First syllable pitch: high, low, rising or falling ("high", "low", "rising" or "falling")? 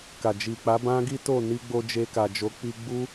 low